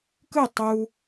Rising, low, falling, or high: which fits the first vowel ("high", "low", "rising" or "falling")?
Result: falling